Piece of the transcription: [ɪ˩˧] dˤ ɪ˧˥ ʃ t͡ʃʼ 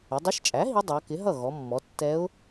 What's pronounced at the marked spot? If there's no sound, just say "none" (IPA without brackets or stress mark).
ɪ˩˧